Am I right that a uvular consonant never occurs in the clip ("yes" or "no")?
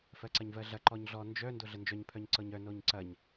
yes